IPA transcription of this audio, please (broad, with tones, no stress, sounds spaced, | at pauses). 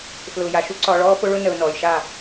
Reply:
f l ʊː˨ j a˨ ʃ u˦ ǀ ɒ˨ ɭ ɔː˦ f ʊ˦ ɭ ʊ˦ n ə˨ ʊ̯ n ɔː˨ j ʃ a˦˨